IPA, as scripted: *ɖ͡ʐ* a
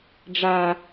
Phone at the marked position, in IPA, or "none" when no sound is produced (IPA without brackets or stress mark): ɖ͡ʐ